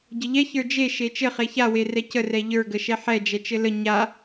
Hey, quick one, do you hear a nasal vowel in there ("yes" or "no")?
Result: no